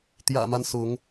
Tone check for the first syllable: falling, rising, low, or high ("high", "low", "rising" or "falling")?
low